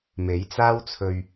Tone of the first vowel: rising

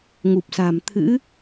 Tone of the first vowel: low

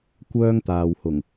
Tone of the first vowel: high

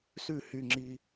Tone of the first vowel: falling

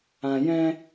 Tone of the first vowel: low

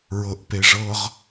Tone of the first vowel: low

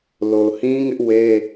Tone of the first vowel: low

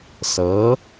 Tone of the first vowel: rising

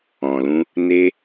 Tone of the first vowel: low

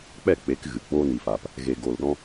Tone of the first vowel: falling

